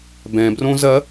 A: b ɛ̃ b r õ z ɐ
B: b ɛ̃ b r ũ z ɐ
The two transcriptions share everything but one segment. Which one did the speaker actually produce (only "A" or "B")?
A